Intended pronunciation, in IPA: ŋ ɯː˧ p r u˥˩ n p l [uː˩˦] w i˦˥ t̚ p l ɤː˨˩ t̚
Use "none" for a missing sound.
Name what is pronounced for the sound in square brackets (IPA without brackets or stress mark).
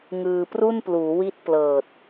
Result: uː˩˦